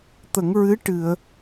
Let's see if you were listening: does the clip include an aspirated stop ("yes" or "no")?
no